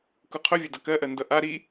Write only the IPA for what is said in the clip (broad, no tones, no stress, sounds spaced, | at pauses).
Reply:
k u qʰ ɵ vʲ ɵ d ʌ k ɜ ʔ ɜ n d ʌ ʔ a ɾ i